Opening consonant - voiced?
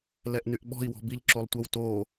yes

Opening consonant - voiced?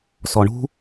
no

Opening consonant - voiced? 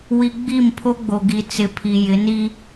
yes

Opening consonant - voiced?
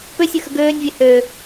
no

